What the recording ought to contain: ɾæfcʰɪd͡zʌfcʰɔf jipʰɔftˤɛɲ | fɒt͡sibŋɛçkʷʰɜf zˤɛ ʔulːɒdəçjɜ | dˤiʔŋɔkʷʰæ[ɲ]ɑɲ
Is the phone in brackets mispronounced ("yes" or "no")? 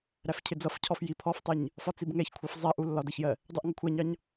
no